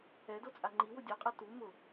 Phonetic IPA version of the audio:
ɛ d o t͡sʼ a ŋ͡ǃ i w ʊ dʲ ɔ qʼ a t u m ʊ

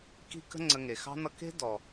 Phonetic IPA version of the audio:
k i̤˧ k ə̤˧ ŋ͡ǀ ə˨ ŋ e˨ x ɑ̤˦ n ʌ˦ k e̤˦ d ɔ˨

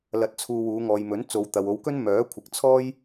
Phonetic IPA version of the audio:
l ɐ˧ t̚ t͡sʰ uː˧ w uː˨˧ ŋ ɔː˨ j m ɵ˨˥ n t͡s o˨˧ w t̪ ɐ˨ w o˨˧ w k ɵ˥ n m œː˨˥ kʷʰ ɪ˨ k̚ t͡sʰ ɔː˥ j

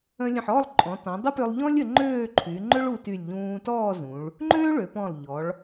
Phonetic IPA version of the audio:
ə̃˧ lʲ ə̃˧˩ ħ ɔ˥˧ lˠ ǃʼ ɔ̃˩˧ t ɔ̃˩˧ dˤ ə˥ p ʏ˧ lˠ ʎ ɔ̃˥ lʲ ə˩˧ ŋ͡ǃ øː˥˧ ǃʰ y˩˧ ŋ͡ǃ ʏ˥ ɭ u˧ t y˧˩ lʲ ʎ ũː˧ t ɔː˥˧ z ũ˩˧ ɭ | ŋ͡ǃ øː˥ ɭ ø˩˧ p ɔ̃˧˩ lˠ ʎ ɔ˩˧ ɭ

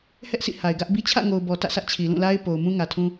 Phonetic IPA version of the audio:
h ɛ˦ ʔ s ḭ˦˨ h a˨ ɪ̯ ɡ ä˦ ʔ b i˦ t͡ɕʰ ä̰˦˨ ŋ o˨ ʊ̯ b ɔ˨ t ä̰˦˨ s ä˦ ʔ t͡ɕʰ i˨ l ũ˦˨ l a˦ ɪ̯ p o˨ ʊ̯ m ũ˦ ŋ ä˨ tʰ ũ˦

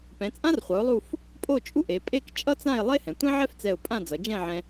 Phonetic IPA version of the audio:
p ɛ̃˩˧ t͡sʼ ã˥ r χʷ ʌ˩˧ ʊ̯ lˠ u˥˧ f | pʼ o˥˧ t͡ʃʼ u˥ ʔ e˩˧ pʼ e˥˧ k t͡ʃʼ ʌ˥ t͡s ã˥˧ ɪ̯ lˠ e˥ h ɛ̃˩˧ tʷ ɛ̃˥ ʕ ɛ˥ f t͡s ɛ˧˩ ʊ̯ pʼ ã˥˧ d͡z ʌ˩˧ d͡ʒ ɛ̃˥˧ ʕ ɛ̃˧

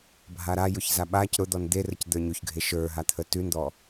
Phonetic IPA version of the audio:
bʱ a ɾ a j ʊ ç z a ɓ a c ɾ ʊ d̪ ɔ n d̪ e r ə c d̪ ə˞ ɲ o ç ɡʱ e ʃ ə˞ ɦ a t̪ʰ ə t ʉ n d̪ ɔ

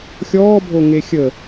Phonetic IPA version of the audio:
xʲ ɔː bʱ o ŋ e xʲ ə

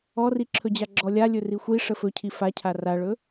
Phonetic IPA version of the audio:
ɔ r i ǁʰ ɵ d͡ʑ a ɡ͡ǁ ɔ lʲ a lʲ ɵ r i xʷ i ʂ ə f ɵ cʰ i f a cʰ a r a ɭ ɵ

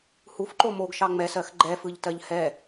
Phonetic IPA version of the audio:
h u f ǃ o m o ɡ ʃ ɑ ŋ͡m ɛ s ɜ x ɡ͡ǃ ɛ f ɯ ʎ t ɜ ʎ h ɛ

